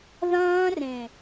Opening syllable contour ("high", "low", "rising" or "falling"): high